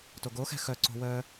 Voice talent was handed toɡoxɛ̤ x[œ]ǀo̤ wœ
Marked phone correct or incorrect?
correct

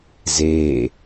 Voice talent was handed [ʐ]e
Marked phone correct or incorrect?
incorrect: z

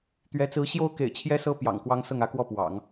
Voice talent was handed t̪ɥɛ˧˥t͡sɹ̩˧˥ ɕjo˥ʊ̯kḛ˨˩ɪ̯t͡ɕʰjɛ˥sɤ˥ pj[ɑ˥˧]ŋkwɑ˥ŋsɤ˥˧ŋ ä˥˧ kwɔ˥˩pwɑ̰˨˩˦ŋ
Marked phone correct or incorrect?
incorrect: ɑ̰˨˩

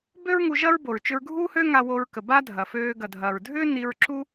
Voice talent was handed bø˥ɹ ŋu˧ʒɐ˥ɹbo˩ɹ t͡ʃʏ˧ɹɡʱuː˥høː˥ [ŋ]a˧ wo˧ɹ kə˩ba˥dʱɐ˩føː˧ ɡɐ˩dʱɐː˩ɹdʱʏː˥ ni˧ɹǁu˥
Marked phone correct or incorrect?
correct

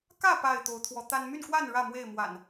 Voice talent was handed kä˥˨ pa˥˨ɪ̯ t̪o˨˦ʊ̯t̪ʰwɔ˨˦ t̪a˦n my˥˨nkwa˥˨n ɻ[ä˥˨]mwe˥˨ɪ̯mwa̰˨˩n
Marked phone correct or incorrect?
correct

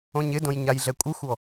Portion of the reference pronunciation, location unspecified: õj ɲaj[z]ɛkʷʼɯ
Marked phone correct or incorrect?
incorrect: ɮ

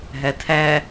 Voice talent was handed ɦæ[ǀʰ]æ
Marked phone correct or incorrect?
incorrect: tʰ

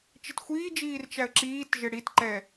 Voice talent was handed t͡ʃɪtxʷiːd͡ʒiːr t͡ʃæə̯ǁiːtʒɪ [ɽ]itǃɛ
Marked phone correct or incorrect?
correct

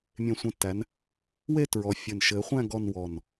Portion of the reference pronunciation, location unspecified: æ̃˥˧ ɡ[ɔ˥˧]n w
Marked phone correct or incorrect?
correct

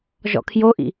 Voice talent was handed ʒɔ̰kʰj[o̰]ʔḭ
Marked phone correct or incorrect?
incorrect: o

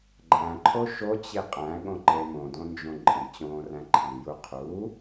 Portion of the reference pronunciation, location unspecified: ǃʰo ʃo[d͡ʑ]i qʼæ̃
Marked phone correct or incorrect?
incorrect: t͡ɕ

